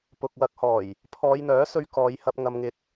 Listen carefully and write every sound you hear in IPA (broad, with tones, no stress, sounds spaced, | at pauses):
p ʊ˨ k̚ w ɐ˨˥ k̚ h ɔː˨˩ j | pʰ ɔː˨˧ j n̪ œː˨˥ s ɵ˧ ɥ k ɔː˨˧ j h ɐ˧ p̚ ŋ ɐ˨ m ŋ ɪ˨˥ k̚